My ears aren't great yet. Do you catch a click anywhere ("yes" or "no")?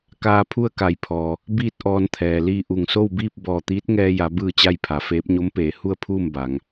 no